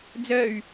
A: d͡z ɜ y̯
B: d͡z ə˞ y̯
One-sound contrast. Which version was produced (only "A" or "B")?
A